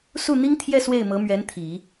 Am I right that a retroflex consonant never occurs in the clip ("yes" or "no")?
yes